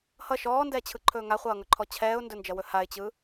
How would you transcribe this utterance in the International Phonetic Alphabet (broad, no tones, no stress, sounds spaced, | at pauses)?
h ʌ ʃ ɔː n d ɛː t͡ɕʰ ɯ ǃʰ ɵː ŋ a χʷ ʌː ŋ ɵ ǃʰ ɔ t͡ɕʰ ɛː ʊ̯ n d ɵ n d͡ʒ ʌ w ɵ h a ɪ̯ t͡ɕ ɯ